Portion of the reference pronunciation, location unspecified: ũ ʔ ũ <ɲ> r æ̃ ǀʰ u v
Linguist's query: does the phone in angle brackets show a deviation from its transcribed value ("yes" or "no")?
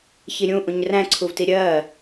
no